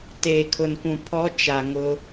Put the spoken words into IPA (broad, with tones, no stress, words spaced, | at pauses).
teː˨kʰʊ˨nkʷũ˨ pʰɔ˦ t͡ʃa˨ŋʊ˦